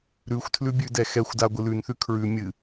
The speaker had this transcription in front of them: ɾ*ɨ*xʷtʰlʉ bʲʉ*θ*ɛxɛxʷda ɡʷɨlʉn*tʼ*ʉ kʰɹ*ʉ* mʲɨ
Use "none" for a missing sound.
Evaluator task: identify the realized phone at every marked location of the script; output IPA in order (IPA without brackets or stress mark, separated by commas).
ʉ, d, θ, ʉ